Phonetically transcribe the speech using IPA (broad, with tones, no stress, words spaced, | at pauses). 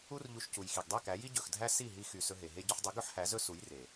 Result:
u˦rʎu˧ʃcu˨jxi˨ɡ dˤe˦˨kæ˨˦ji˦ ɟɵ˨xdʱæ˦si˦˨ ɦi˦xy˧ sɵ˧ɦe˨ɦe˦ ɟɵ˧ħdˤi˨˦ɡɵ˦ħhæ˨˦ zɵ˦su˨˦jre˨